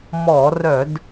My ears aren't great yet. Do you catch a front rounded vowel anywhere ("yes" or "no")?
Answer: yes